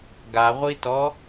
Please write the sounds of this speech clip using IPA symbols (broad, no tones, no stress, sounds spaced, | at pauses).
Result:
ɡ a ʁʷ i t ɔ